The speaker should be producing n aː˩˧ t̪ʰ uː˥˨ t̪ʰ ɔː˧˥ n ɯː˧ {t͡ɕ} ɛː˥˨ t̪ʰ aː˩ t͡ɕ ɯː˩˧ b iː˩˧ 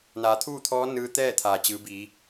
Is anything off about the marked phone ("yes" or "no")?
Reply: yes